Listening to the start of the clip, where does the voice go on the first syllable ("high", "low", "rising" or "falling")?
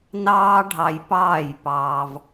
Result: high